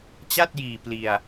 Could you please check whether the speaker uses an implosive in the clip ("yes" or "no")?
no